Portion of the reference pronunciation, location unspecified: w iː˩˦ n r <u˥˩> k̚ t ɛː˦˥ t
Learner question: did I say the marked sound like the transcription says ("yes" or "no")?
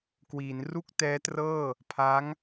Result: yes